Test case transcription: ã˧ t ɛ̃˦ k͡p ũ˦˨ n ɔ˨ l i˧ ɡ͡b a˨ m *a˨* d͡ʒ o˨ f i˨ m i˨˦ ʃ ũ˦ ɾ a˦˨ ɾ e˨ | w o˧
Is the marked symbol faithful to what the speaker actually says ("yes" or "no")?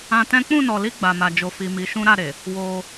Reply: yes